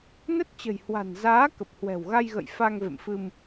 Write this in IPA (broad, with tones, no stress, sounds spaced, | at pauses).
n ə˦˥ t̚ t͡ɕ ə̤˨˩ j h w a̤˨˩ n z aː˨˦ k ə˨˩ p̚ h w ɛ̤˨˩ w ɣ a˧ j ɣ ə̰˧˨ j f a˧ ŋ v ḛ˧˨ m f ɨ˧ m